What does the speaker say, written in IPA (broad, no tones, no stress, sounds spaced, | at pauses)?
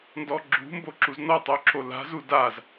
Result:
n d ɔ ɡ͡ǁ ṳ m b o ǁ u z n ɔ tˤ o ǁ o l a̤ z u d a z